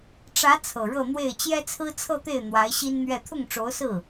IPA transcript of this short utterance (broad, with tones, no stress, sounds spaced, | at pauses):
ʈ͡ʂ ä˧˥ t͡sʰ ɤ˨˩ ɻ ɤ˥˧ n̪ w e˥˩ ɪ̯ t͡ɕ j ɛ˥ t͡sʰ ɹ̩˥ t͡sʰ ɤ˥˧ t̪ e˥˩ ɪ̯ n̪ w a˧˥ ɪ̯ ɕ i˥ n n̪ ɥ ɛ˥˧ t̪ʰ ʊ˥˩ ŋ ʈ͡ʂ o˧˥ ʊ̯ s ɹ̩˥˩